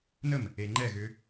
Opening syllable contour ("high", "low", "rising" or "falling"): falling